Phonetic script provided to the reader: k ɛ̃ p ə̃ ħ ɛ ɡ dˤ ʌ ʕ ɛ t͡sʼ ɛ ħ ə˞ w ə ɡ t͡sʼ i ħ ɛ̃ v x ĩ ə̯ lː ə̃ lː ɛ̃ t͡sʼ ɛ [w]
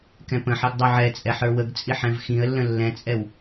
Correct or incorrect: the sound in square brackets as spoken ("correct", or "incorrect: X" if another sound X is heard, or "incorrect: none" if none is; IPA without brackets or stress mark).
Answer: correct